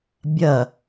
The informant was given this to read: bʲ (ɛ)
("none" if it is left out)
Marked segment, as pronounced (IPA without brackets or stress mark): ɜ